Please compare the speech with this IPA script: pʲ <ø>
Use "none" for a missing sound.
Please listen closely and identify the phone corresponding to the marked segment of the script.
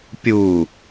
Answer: u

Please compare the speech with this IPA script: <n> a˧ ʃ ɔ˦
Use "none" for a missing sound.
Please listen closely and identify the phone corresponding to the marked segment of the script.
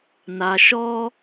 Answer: n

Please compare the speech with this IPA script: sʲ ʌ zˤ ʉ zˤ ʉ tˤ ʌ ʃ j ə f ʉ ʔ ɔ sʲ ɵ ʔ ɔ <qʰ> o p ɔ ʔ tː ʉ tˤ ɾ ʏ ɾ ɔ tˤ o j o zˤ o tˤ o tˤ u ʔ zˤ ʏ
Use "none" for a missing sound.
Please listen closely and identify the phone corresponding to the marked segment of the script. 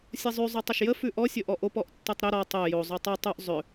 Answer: ʔ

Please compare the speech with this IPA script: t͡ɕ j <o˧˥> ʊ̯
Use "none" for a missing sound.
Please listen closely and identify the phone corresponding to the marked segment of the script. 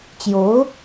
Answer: o˧˥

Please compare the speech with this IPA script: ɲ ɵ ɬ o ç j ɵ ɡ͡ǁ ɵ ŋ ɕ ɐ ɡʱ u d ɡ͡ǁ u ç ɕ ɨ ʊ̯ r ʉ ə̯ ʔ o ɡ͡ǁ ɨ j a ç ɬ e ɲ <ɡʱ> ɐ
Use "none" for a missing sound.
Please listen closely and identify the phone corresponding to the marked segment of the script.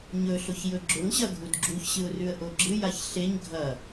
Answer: ɡʱ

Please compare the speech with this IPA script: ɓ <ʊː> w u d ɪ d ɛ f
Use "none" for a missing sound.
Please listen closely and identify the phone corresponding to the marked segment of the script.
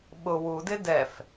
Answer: ʊ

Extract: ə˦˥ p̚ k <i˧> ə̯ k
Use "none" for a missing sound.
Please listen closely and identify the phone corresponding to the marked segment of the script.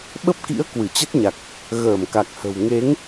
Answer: ḭ˧˥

